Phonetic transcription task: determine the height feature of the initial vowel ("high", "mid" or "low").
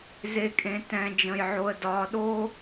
mid